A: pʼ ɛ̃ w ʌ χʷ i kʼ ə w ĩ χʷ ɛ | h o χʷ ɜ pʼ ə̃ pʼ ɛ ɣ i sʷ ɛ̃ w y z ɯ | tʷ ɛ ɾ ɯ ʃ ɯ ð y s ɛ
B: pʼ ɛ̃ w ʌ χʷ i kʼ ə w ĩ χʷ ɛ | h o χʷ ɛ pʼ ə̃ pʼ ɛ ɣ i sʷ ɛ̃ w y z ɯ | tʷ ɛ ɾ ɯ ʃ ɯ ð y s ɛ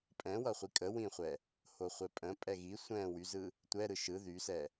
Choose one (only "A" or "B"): B